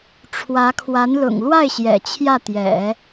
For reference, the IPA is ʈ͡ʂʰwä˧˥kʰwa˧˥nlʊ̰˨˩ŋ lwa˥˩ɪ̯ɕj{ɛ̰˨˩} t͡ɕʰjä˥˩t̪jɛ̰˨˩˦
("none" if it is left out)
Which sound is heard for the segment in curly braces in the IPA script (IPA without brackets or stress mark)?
ɛ̰˨˩